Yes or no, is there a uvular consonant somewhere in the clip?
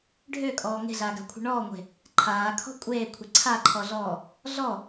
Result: no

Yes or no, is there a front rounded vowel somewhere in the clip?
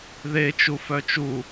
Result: yes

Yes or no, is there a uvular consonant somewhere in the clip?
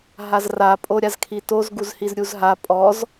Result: no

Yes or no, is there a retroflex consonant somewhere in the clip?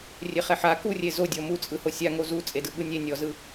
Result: no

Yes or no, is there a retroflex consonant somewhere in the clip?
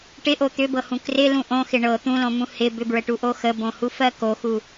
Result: yes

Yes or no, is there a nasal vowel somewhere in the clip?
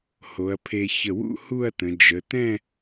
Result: yes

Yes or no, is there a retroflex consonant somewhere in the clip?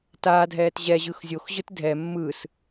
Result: no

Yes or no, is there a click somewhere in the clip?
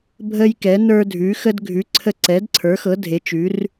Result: yes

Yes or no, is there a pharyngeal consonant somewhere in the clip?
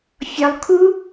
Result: no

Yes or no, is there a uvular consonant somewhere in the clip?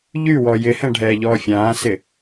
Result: no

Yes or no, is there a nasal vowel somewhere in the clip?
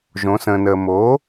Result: yes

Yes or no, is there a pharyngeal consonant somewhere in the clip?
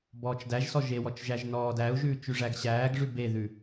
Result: no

